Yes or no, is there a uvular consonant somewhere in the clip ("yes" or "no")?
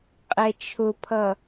yes